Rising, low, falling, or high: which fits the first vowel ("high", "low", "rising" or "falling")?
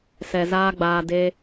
low